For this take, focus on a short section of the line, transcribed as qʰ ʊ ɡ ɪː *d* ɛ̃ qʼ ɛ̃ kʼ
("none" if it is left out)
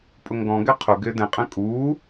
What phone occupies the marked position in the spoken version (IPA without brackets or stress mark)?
d